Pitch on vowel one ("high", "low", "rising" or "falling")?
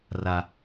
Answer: low